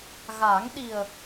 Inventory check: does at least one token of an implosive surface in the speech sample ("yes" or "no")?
yes